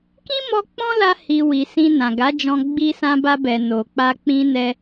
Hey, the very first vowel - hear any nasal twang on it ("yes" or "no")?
yes